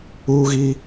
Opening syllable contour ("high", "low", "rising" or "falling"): high